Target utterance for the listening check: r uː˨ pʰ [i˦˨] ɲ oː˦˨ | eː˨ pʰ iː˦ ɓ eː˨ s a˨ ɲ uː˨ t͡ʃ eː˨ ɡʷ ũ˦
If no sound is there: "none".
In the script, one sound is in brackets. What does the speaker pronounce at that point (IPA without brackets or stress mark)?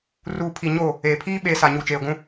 i˨